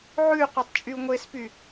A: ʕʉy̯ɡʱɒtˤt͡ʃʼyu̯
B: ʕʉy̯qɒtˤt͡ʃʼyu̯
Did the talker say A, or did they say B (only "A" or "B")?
B